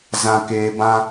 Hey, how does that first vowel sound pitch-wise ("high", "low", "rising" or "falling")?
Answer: low